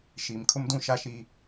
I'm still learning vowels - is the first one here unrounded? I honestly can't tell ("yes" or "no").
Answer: yes